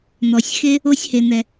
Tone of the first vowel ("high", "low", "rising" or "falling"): low